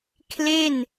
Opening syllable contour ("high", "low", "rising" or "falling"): falling